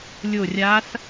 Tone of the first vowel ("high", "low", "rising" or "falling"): falling